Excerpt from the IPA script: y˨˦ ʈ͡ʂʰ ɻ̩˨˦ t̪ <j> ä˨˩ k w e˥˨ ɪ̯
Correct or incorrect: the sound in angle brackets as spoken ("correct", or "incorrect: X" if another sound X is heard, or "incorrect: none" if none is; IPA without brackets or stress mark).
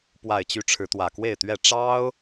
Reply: incorrect: w